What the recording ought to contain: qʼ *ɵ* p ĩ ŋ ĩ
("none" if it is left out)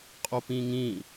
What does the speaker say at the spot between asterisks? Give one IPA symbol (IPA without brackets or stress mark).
o